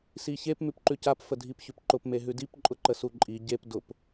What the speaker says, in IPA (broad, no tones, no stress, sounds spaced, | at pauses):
s i ç e p m ʉ p ǃ ʉ c a p f ə dʱ i p ç ʉ p ǃ ʊ p m e ɦ ʉ d i p ǃʼ ʊ ǃ ə s u ǃʼ i ɟ e p d ʊ p